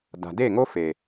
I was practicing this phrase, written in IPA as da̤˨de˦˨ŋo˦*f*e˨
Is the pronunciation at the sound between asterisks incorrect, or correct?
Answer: correct